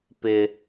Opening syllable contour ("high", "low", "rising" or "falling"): low